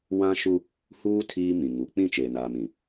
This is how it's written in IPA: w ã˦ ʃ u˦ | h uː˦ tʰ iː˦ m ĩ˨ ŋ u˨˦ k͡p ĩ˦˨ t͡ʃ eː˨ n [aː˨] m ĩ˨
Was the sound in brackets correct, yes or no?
yes